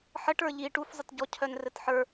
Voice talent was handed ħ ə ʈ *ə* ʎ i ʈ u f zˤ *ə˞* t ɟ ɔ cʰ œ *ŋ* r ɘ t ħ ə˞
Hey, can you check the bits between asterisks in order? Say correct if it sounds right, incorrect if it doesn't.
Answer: incorrect: ə˞, incorrect: ə, incorrect: n

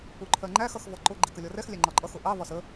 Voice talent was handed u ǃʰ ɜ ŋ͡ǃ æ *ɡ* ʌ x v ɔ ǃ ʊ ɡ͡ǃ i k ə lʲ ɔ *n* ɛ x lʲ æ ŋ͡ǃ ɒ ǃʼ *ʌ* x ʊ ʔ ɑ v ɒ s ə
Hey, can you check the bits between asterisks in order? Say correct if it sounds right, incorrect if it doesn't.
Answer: incorrect: x, incorrect: r, correct

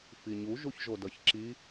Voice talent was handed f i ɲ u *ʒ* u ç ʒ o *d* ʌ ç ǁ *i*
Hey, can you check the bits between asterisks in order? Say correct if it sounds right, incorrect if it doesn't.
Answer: correct, correct, correct

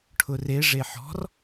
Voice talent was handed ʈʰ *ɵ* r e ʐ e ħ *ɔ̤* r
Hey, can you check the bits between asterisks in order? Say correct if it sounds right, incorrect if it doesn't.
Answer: incorrect: ʊ, correct

